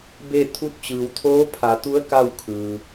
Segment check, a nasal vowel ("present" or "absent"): absent